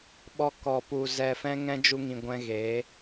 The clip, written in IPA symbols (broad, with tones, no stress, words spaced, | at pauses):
ɓɔ˦ kɔ˨pu˨ zɛ˨fɛ̃˧ ŋɛ̃˧ d͡ʒu˧ŋĩ˨ ɡʷɛ̃˧ɣeː˨˦